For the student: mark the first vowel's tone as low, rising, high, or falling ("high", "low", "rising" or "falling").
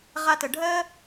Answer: high